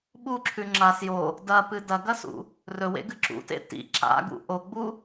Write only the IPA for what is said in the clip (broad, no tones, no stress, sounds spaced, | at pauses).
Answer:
ɓ u ǁʰ ʉ ŋ͡ǁ a s j o | d ɐ p ɨ d ɐ ɡ ɐ s ṵ | r ɵ w ḛ ɡ ɨ ǁ ṵ t ḛ t ḭ ǁ a̰ ɡ ṵ ʔ o ɡ͡b u